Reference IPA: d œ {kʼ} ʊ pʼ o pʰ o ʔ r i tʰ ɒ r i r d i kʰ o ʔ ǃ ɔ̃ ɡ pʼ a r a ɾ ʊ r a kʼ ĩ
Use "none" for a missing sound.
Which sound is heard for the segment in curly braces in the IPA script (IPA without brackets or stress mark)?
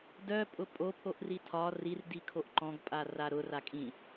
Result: pʼ